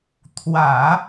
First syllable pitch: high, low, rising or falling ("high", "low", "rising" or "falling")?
low